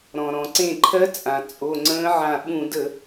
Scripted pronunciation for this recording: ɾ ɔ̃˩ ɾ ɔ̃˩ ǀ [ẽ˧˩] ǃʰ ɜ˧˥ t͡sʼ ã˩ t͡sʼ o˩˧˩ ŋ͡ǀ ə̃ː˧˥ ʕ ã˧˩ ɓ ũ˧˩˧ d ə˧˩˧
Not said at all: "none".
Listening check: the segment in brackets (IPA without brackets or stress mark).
ẽ˧˩